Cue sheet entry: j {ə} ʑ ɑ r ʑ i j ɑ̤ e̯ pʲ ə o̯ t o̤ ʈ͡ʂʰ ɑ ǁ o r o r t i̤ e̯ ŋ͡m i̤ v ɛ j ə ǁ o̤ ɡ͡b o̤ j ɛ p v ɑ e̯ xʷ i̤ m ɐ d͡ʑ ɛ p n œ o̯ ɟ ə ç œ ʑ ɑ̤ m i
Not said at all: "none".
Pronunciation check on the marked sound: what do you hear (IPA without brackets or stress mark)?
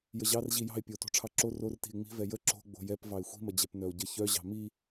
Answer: ə